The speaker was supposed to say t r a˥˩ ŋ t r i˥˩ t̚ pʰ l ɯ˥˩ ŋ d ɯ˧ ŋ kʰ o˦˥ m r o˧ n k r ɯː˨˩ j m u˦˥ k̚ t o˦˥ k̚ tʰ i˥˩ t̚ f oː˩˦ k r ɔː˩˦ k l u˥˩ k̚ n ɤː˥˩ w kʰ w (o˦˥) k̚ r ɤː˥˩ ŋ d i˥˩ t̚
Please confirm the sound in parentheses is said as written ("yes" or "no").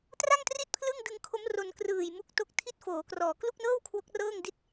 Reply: yes